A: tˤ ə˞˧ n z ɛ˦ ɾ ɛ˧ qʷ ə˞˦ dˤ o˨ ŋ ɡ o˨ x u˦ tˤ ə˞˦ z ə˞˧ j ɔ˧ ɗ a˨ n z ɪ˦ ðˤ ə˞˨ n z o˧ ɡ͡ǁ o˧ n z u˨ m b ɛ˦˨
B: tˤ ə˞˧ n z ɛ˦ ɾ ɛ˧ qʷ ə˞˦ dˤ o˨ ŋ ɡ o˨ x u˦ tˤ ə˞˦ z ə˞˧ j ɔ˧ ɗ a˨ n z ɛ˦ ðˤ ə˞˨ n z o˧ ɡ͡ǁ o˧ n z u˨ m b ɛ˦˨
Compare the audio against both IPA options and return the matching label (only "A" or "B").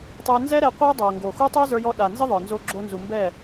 A